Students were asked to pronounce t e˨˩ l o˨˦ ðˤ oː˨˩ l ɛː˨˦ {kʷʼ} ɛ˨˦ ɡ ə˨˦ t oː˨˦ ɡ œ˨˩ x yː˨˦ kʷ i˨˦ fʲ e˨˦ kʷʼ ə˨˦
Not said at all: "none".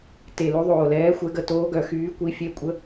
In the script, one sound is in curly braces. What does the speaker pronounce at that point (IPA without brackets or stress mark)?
xʷ